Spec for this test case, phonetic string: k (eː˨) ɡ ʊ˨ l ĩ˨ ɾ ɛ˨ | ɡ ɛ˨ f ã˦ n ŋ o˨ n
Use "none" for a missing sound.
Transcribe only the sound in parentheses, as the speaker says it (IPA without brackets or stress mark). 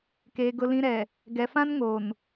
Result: eː˨